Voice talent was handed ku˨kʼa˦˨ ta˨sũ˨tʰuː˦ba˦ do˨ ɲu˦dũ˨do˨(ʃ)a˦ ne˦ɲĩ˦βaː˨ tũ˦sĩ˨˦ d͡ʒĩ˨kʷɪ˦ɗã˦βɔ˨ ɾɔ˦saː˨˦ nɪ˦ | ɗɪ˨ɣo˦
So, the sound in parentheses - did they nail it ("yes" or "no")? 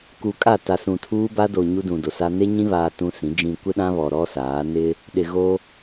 no